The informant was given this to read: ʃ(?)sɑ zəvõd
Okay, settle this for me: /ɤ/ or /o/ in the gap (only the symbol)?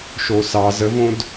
o